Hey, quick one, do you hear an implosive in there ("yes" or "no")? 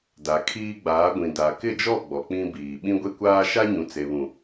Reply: yes